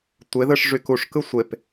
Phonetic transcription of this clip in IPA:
tʷ e ð ɯ ʂ ʐ y k u ʂ k ɯ sʷ e p

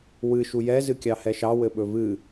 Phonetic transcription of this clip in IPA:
w ɨ ʃ u j ɛ z ɨ kʲ ɑ h ɛ ʃ ɑ w ɘ ɓ ɵ v ɨ

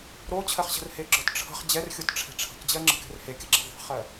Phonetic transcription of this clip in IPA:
ɾ o t͡ɕʰ ɜ χ ɕ ə̤ r h e ɡ͡ǁ ɔ t ʈ͡ʂʰ ə̤ χ d͡ʑ ɛ r xʲ o t ʈ͡ʂʰ ɛ̤ ʈ͡ʂʰ ə̤ k d͡ʑ ɜ ŋ͡ǁ ə̤ k ɛ̤ r h e kʲ ə ɡ͡ǁ ɛ ðˤ ɛ̤ χ ɜ

